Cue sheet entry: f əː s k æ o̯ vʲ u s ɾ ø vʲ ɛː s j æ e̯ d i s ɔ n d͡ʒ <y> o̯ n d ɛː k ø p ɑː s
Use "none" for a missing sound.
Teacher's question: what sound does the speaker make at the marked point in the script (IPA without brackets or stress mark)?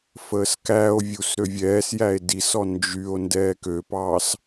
y